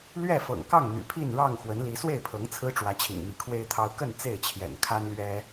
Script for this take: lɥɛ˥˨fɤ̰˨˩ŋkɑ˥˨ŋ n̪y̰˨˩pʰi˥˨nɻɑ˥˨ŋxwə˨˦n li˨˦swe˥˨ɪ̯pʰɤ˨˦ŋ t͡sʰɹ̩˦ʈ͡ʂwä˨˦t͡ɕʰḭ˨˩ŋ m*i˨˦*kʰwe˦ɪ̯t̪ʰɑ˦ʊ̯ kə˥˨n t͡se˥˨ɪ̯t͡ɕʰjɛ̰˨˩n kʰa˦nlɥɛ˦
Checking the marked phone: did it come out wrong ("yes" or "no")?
no